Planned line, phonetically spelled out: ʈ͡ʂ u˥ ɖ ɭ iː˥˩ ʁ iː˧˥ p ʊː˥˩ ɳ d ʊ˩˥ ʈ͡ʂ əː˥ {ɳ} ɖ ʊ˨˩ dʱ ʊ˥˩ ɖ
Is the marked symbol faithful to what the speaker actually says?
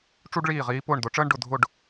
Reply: yes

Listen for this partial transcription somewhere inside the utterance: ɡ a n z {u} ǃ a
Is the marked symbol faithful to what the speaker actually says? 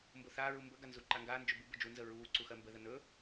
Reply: yes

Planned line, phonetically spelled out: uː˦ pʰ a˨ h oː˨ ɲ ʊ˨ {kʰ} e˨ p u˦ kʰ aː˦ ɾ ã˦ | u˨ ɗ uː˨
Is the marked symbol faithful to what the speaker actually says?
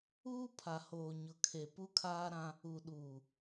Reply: yes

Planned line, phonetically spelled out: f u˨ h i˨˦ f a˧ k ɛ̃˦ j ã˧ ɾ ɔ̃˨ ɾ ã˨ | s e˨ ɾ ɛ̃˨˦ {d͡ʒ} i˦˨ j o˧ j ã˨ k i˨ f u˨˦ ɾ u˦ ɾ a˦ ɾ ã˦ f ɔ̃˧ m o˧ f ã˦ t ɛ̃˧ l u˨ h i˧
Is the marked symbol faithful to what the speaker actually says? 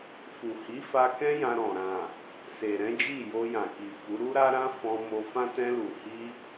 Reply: yes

